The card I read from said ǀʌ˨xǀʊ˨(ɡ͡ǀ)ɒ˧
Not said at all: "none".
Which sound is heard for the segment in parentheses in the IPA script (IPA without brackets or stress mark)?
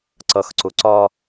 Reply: ǀ